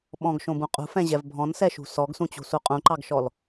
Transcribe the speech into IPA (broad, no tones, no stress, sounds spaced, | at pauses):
ɓ ɔ̃ ɡ ʃ õ b ũ qʼ ṳ f ɛ̃ ʑ ɛ v bʱ ɔ̃ n s ɛ ʃ ṳ s ɔ ɡ s ũ t͡ɕ ṳ s u qʼ ũ ǃ ɑ ɡ ʃ ɔ l